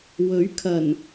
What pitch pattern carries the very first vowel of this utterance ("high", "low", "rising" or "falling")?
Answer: rising